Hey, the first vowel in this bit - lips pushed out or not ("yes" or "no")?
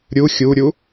yes